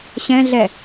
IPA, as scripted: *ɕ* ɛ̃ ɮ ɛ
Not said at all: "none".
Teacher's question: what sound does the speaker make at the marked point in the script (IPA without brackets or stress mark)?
ɕ